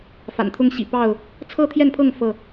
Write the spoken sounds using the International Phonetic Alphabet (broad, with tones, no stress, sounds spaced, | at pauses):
f a̰˨˩ n t̪ʰ ʊ˦ ŋ ɕ ḭ˨˩ p ɑ˥˨ ʊ̯ | t͡sʰ ɤ˥˨ t̪ʰ j ɛ˥˨ n pʰ ɤ˥˨ ŋ f ɤ˥˨